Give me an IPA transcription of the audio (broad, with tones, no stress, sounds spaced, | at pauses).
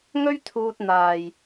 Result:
ŋ ɵ˥ ɥ t̪ʰ uː˧ t̚ n̪ aː˨ j